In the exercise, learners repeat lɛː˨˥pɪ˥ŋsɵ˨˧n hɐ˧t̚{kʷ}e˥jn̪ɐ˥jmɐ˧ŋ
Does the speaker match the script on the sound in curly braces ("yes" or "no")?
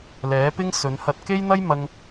no